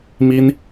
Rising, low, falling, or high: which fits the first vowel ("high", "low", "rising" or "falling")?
high